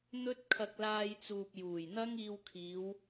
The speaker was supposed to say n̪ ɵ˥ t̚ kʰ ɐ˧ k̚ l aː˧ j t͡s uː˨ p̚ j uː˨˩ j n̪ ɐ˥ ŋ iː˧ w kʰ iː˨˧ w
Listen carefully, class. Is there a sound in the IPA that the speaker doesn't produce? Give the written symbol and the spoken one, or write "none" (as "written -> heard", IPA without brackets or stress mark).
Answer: none